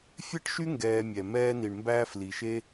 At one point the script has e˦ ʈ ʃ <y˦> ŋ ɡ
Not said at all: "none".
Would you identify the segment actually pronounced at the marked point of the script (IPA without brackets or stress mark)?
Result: y˦